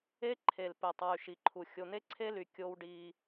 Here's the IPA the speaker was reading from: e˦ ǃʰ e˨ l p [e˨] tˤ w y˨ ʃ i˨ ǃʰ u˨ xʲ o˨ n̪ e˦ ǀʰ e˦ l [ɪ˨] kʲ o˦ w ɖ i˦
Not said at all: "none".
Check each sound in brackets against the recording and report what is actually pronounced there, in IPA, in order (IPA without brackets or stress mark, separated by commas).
e˨, y˨